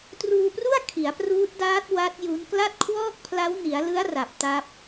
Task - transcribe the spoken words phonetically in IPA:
truː˧pru˥˩a̯ kʰi˩˦a̯pruː˦˥t̚ daː˦˥t̚ wa˦˥t̚ju˦˥n kla˥˩t̚kʰwɔː˥˩k̚pʰla˦˥w ni˩˦a̯lɯ˦˥a̯ ra˨˩p̚ta˦˥p̚

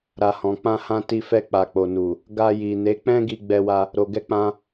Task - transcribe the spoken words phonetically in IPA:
ɾa˨hɔ̃˨ k͡pã˧hã˧ ti˧fɛ˧ k͡pa˨k͡po˨nu˨ | ɡa˧ji˨ne˨˦ k͡pɛ̃˦ɡi˧ ɡ͡bɛ˧wa˧ | ɾo˨ɡɛ˧k͡pã˧

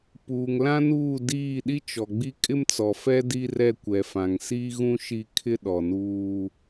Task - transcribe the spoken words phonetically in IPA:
puː˨ŋ lã˦nuː˦˨ diː˦˨ ɗi˦t͡ʃɔ˨ɡ͡bi˦ kʼɪ˦mt͡sɔ˨fɛ˦ di˦rɛ˦˨ kʷɛ˨fã˨ŋsiː˦ɣũ˦ ʃi˦ kʰɪ˦ɗɔ˨nuː˦

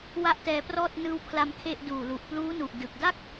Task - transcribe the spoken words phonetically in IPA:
wa˥˩ʔtɛː˧prɔː˥˩t̚ nɯː˧wpʰla˧m kʰe˥˩ʔ duː˨˩ lu˨˩ʔpluː˦˥nu˨˩ʔ dɯ˨˩k̚da˥˩k̚

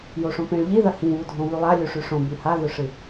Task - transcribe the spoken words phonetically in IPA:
joʂõpẽɭ ʎiðɐ hĩβudʱõ βʉlˠa lʲuʂʉʂõ bʉhaðɵʂɨ

